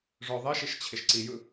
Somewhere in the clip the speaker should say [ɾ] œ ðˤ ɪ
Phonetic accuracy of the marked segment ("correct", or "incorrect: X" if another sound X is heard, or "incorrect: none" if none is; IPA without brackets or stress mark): incorrect: ʐ